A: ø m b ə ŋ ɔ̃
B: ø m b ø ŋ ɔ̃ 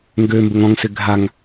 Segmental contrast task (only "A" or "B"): A